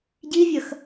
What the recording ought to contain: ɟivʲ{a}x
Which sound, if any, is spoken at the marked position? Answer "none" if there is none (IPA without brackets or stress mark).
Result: ɐ